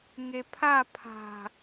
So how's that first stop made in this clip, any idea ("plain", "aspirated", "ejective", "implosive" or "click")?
aspirated